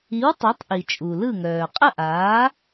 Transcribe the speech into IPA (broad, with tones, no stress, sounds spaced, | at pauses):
i˩˥ w tˤ œ˩˥ tˤ ʔ i˩ t͡ʃʼ u˩ l ɯ˥˩ ŋ œː˩ qʼ ə˥˩ ʔ aː˩˥